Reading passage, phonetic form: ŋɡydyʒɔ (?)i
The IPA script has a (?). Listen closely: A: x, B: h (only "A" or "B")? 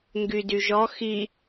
A